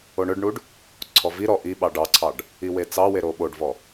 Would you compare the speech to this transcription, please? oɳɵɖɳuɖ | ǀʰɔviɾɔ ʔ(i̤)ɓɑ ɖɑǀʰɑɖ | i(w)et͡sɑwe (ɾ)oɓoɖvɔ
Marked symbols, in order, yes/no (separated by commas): no, yes, yes